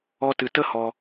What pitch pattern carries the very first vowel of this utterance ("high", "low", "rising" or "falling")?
high